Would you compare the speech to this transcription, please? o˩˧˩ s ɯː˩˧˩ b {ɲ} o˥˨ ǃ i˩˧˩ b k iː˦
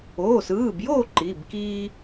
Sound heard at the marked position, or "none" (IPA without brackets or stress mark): j